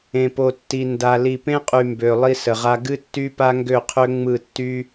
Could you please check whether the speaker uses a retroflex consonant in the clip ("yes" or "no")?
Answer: no